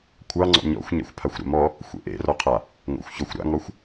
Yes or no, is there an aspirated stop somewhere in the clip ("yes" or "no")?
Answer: yes